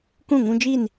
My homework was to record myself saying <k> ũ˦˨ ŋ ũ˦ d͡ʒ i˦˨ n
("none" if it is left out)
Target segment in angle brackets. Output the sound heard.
k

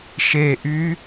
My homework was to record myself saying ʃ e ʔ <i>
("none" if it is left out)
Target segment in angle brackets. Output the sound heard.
y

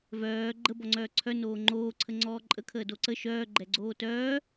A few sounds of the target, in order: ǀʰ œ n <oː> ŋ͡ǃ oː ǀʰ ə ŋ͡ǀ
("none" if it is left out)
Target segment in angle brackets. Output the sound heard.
oː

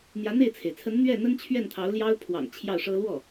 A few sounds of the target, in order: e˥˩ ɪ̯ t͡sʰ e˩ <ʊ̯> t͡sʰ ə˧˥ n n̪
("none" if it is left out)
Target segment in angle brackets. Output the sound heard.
ɪ̯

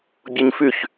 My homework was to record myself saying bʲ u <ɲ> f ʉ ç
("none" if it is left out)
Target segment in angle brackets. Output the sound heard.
ɲ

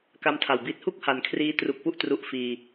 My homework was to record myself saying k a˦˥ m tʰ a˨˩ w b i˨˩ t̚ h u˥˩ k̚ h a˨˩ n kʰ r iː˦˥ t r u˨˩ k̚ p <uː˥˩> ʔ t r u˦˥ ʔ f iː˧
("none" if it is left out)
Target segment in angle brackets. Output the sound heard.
u˥˩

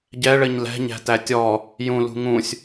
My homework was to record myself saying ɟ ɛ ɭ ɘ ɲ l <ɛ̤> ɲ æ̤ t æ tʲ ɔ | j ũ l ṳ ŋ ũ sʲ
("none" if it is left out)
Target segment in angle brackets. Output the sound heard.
ɛ̤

